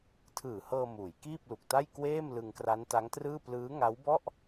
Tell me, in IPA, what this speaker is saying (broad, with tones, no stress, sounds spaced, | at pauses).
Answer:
tʰ ɯː˨˩ h ɤː˧ m uː˩˦ j k iː˥˩ p̚ l u˨˩ k̚ t a˥˩ j k w eː˥˩ m l ɯ˧ ŋ k r a˦˥ n t a˦˥ ŋ t r ɯː˥˩ p l ɯː˦˥ ŋ a˦˥ w b ɔ˥˩ ʔ